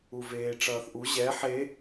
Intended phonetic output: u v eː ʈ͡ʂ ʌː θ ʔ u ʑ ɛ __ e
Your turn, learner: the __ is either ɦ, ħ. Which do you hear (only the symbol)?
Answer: ħ